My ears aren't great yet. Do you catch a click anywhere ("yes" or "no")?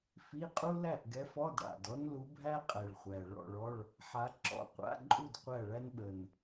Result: yes